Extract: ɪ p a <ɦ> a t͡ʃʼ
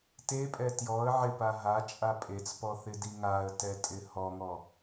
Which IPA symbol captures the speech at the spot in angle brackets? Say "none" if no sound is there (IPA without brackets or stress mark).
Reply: ɦ